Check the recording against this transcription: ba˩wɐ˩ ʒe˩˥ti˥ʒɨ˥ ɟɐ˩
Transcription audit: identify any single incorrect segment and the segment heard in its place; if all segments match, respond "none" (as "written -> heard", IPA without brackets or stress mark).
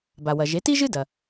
ɟ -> d